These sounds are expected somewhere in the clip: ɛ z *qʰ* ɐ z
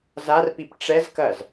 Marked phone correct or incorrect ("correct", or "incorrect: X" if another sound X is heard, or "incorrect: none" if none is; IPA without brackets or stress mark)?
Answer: incorrect: k